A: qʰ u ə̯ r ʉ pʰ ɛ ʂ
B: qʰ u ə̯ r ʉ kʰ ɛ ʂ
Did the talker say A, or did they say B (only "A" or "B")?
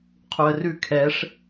B